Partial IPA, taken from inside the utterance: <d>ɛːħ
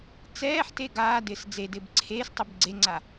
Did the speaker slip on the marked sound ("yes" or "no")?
yes